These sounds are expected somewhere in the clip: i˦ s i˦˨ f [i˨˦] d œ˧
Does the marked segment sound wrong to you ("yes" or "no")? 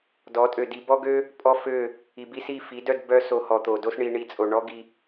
no